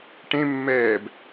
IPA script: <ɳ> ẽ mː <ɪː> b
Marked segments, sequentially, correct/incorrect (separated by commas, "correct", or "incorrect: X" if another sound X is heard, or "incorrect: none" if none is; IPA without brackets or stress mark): incorrect: ʈ, incorrect: ɛː